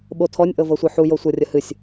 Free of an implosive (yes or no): no